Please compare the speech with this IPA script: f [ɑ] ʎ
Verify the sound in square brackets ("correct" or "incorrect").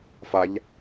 incorrect